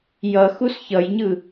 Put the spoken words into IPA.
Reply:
j ʌ x u s ç ʌ j ɲ ɯ

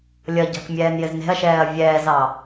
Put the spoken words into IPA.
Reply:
lʲ ʌ ɟ ɑ̤ k mʲ ɛː n j ɪ z n e̤ ɐ̯ ʃ ɛː ɐ̯ vʲ ɛː z ɑ

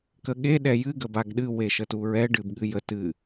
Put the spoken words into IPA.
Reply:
k ə ɠ e ɗ ɛ j ɨ ɡ ə b a ɡ ɗ ɨ w e ʃ ə t u ɹ ɛ ɖ ɨ b ɠ ɨ j ə t ɨ

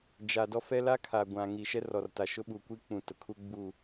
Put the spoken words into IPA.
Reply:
d͡ʒ a˨ d ɔ˦ f ɛ˦ l a˦ kʰ a˨ ɡʷ ã˨ ŋ iː˨ ʃ ɛ˦ r ɔ˨ r t a˨ ʃ ʊ˦ ɓ u˨ kʷ i˦ k͡p ũ˨ t ʊ˨ kʰ u˦ ɡ͡b u˦˨

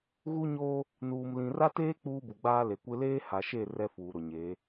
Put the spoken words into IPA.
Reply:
ɣ u˦ ɲ oː˦ | n uː˨ m l ĩ˨ r a˦ t eː˦ k͡p uː˦ b u˨ ɡ͡b aː˦ l e˨ kʷ ɪ˦ l eː˦ h a˨ ʃ e˦˨ r ɛ˦ f uː˨ ɾ ʊ˨ ɲ eː˨˦

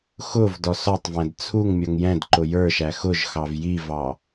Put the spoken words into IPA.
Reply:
x ʊ v d ɔ s ɔ tˤ v æ̃ d t͡sʰ u ŋ mʲ ɔ ŋ j ɛ̃ d ǃ ʊ j ə˞ ʃ æ x ʊ ʒ x ɑ v j i v ɑ

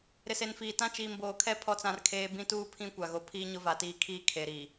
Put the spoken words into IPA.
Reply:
ɾ ɪ˨ s e˨ n f iː˨ t ã˦ t͡ʃ iː˨ m b oː˨ kʰ ɛ˦ pʰ ɔ˦ t͡s ã˦ r kʰ eː˦ b ĩ˦ t uː˦ pʰ ĩ˦ kʷ a˨ ɣ o˨ pʰ iː˦ ɲ ʊ˦ v a˨ t iː˦ kʰ iː˦ kʰ e˨ ɾ i˨

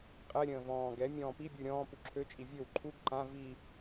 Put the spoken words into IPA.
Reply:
qʼ ɛ ɾʲ ə̃ː v ɔ̃ː ɡ ɛ mʲ ɔ̃ː p i bʲ u ɾʲ ɔ̃ː p u ǁʰ ø t͡ʃʼ i vʲ ø w ǃʰ u ɡ ǃ ã v i

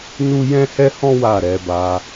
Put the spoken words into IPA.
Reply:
n u˦ j ɛ̃˦ h ɛ˦ h ɔ̃˦ w a˦˨ ɾ ɛ˧ b a˧

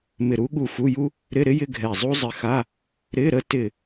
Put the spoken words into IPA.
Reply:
m ɪ˧˩ ɾ u˥ ɠ u˧˩ f u˧˥˧ j u˥ | ɾ ɪ˧˥˧ ɾ ɪ˥ j ɪ˧˥˧ ɡʱ ɛ˧˩ zˤ u˥ zˤ ɪ˧˥ x a˧˥˧ | ɾ ɪ˧˥˧ ɾ ə˥ t ɪ˧˩

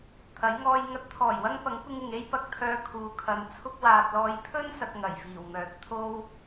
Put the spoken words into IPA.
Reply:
t̪ʰ ɐ˨˥ j ŋ ɔː˧ j ŋ ɐ˨˥ t̚ t̪ʰ ɔː˨˩ j w ɐ˧ ŋ p ɐ˨˥ ŋ kʷ ɪ˧ ŋ ɪ˨ ŋ e˥ j p ɐ˧ k̚ t̪ʰ œː˧ kʰ uː˨ kʰ ɐ˨˧ n t͡sʰ ʊ˧ k̚ w aː˨ t̚ l ɔː˨˧ j pʰ ɵ˥ n s ɐ˧ k̚ ŋ ɐ˨˩ j f iː˨˩ w m œː˨ t̚ t̪ʰ o˥ w

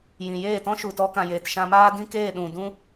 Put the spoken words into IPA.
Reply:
j ĩ˨ j eː˦˨ t ɔ̃˦ ʃ u˨ t ɔ˧ k ã˨ j eː˨ t ʃ ã˧ m aː˦ d ĩ˦ k eː˦˨ ɗ ũ˨ d ũ˦

